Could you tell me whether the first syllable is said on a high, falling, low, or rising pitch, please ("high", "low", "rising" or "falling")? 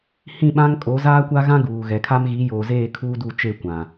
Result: falling